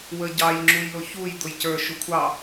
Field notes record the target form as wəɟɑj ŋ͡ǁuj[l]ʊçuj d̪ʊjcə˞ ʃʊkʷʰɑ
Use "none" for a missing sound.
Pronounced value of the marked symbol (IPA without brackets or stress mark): l